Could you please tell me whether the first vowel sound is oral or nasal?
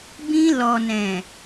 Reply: nasal